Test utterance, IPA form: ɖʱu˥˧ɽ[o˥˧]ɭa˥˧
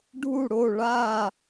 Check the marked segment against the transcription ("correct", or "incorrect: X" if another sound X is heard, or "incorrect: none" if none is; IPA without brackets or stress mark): correct